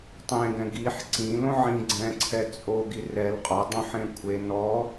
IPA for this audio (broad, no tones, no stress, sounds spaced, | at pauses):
tˤ ẽ ɡ ɛ̃ ɡ i ħ ǀ ĩ l õ ʕ ĩ ɡ͡ǀ ɛ̃ ǀʰ ɛ t͡sʼ o ɡ i r ɛ l qʼ ɔ dˤ õ ħ ẽ kʷʰ e n ɔ